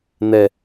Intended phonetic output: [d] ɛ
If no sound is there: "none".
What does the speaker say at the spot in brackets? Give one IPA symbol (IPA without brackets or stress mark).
n̪